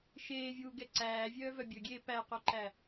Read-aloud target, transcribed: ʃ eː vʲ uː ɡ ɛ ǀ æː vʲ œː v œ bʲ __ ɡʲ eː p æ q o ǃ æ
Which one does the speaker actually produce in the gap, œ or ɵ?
ɵ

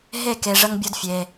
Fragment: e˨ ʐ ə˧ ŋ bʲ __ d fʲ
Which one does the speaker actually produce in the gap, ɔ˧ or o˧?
o˧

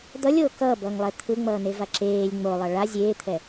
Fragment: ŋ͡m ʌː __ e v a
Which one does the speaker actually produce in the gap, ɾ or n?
n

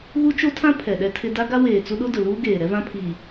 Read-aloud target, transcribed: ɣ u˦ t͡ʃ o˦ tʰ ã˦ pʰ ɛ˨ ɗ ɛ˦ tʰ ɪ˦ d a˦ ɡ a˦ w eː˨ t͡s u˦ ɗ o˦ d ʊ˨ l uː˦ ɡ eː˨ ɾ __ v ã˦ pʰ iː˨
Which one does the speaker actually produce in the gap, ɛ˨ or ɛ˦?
ɛ˦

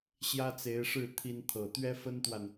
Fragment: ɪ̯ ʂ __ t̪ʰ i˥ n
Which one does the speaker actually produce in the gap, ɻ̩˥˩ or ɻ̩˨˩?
ɻ̩˥˩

